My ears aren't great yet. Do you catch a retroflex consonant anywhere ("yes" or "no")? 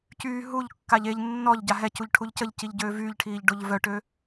yes